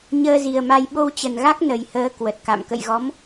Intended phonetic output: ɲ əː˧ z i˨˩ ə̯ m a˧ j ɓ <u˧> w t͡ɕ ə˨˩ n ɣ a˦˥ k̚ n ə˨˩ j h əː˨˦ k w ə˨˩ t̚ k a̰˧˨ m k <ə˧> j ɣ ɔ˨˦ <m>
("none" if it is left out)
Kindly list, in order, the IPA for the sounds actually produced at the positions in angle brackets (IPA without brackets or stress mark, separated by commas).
o˧, ə̰˧˨, m